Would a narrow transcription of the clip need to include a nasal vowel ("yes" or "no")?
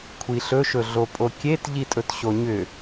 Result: no